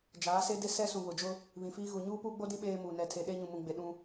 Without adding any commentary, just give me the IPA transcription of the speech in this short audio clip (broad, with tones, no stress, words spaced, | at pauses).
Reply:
d͡ʒaː˨˦se˦ de˦sɛ˦sũ˨ βʊ˨d͡ʒʊ˦ | βĩ˨fiː˦ɣu˨ ɲuː˦puː˦ɡ͡bo˦dĩ˦ ɓeː˦muː˨ nɛ˨tʰe˨ ɗe˦ɲũ˨mũ˨ɡ͡be˨ ɗũ˦